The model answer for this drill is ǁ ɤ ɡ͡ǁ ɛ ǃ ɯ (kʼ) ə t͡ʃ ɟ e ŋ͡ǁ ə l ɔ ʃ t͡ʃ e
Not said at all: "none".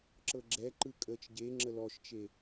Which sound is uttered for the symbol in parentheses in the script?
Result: kʼ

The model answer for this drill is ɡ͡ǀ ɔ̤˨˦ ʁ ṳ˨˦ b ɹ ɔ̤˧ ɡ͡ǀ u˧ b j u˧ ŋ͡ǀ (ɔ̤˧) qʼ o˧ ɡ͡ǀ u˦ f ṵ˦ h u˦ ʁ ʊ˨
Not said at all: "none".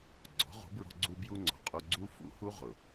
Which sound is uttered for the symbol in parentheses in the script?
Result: ɔ̤˨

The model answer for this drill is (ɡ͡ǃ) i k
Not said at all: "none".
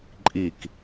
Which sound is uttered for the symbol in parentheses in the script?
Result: ǃʼ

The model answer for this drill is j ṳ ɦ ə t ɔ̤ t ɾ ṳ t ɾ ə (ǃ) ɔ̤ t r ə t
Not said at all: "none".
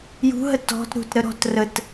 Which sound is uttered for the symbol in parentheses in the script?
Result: ɾ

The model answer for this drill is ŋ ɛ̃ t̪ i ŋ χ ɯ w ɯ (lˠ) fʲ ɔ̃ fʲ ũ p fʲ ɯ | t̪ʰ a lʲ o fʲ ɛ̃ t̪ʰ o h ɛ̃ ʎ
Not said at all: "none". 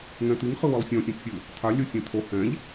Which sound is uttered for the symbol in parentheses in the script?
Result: lˠ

